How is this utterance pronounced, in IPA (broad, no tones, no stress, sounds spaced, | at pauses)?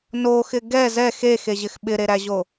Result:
n o x ɪ ɡ ɛ z ɛ x e x e ʑ ɪ x ɓ ɪ ɾ e ɾ æ ʑ o